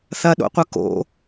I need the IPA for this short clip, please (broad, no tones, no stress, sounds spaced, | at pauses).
θ ɐ ɗ o̰ qʷ ɐ k o̰